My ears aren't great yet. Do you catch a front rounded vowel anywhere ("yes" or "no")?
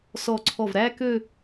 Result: yes